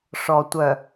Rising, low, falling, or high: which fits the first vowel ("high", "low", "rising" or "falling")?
low